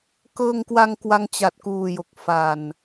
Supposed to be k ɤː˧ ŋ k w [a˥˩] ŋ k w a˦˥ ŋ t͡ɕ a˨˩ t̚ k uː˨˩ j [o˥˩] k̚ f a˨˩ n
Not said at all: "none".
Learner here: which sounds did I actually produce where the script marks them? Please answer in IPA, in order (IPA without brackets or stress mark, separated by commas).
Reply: a˧, o˨˩